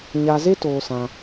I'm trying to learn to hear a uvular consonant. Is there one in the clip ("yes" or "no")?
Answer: no